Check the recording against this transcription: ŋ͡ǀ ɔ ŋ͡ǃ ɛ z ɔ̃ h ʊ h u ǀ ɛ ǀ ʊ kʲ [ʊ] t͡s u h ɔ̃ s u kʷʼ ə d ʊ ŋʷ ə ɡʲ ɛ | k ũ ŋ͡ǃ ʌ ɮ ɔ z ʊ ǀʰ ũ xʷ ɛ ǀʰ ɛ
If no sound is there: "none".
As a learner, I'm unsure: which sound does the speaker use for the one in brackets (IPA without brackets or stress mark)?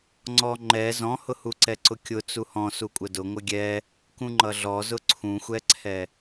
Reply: ʊ